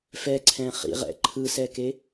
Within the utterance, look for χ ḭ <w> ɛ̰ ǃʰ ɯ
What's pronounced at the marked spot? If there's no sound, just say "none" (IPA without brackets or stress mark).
ʁ